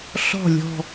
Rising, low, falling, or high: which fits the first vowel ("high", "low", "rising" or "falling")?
falling